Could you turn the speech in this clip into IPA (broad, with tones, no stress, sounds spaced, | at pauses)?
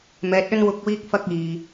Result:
m ɛː˨˥ t̚ ɵ˥ n w ʊ˧ k̚ w iː˧ k̚ f ɐ˧ k̚ iː˨